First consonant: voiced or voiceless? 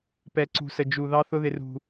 voiceless